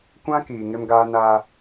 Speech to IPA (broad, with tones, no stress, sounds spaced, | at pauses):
kʷ ã˦ k iː˨ ŋ ɪ˦ m ɡ aː˦ n aː˦